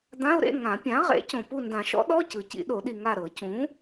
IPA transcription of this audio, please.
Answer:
d̪ ã˧˥˧ ʊ̯ ɾ ḛ˧˥˧ ŋ ã˨˩˦ pʲ ã˩˥ ʁ ḛ˩˥ c õ˨ p u˦˨ n d ã˨˩˦ ʃ ɔ̰˩˥ ɗ ɔ˧˥˧ c ɯ˨ c ḭ˨˩˦ ɗ o˨˩˦ ɗ i˨ ŋ a˦˨ ɾ ɤ˨˩˦ c ũ˩˥

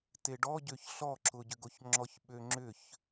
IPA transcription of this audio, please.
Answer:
t e ɖ ɔ ɟ ø ç ɬ ɔ ǁ ʊ ɟ ʏ ɡ o ç ŋ͡ǁ ɔ ç ɓ ø ŋ͡ǁ ʏ ç

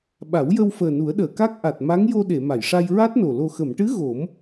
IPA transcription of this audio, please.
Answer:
ɓ a˨˩˦ w j ə˧ w f əː˨˩ n u˨˩˦ ə̯ ɗ əː˨˩˨ k a˦˥ k̚ ʔ a˨˩ t̚ m a˧˥ ŋ j o˧ ɗ e˨˩˨ m a˨˩˨ j ʂ a˧ j ɹ a˦˥ t̚ n o˨˩ l o˨˩ x ə˨˩˨ m ʈ ɨ˧˥ ɣ o˨˩˦ m

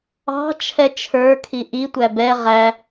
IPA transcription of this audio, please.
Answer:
ɑ̤ t͡ʃʰ ɛ t͡ʃʰ ə˞ kʰ i ʔ i tʷ æ b ɛ ʁ æ

